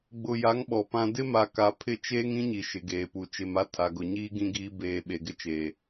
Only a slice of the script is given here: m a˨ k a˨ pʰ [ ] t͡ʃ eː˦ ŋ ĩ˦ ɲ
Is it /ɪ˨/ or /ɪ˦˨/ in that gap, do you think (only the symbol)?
ɪ˦˨